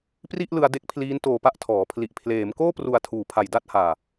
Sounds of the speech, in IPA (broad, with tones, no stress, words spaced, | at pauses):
pri˥˩ʔlɯ˧a̯de˦˥k̚pʰliː˦˥n toː˧pa˥˩ʔtʰɔː˩˦ pʰli˨˩ʔpʰleː˩˦m koː˥˩pru˨˩a̯ tʰuː˩˦pʰa˨˩j da˥˩t̚haː˨˩